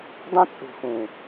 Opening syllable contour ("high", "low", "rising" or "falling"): high